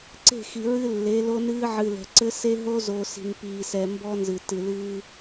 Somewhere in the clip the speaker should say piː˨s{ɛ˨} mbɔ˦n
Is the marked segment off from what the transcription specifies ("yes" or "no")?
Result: no